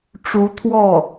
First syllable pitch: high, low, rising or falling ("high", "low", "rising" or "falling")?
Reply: rising